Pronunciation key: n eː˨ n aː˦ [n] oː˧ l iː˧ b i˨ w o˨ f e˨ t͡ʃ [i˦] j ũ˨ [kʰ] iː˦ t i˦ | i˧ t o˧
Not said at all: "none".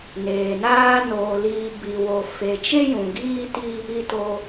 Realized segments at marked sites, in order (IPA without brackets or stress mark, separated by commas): n, e˦, ɡ